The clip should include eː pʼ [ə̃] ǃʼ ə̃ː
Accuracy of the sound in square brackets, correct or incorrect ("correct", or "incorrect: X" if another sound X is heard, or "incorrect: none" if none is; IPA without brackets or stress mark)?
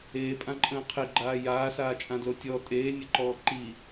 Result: incorrect: ã